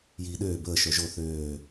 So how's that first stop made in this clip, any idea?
implosive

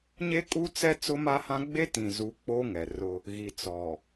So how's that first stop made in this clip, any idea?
ejective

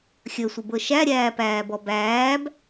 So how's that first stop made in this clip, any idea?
plain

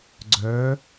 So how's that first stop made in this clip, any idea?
click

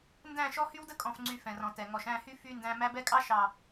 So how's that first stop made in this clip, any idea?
plain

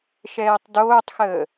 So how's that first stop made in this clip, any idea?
plain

